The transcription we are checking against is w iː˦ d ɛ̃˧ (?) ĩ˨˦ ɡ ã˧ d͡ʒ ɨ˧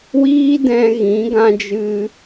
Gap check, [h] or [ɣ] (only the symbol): ɣ